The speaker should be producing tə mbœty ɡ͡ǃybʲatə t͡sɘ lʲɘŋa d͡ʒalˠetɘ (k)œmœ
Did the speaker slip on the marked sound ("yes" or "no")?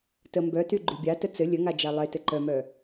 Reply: yes